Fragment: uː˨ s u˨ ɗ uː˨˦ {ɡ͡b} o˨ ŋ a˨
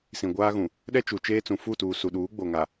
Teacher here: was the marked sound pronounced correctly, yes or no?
yes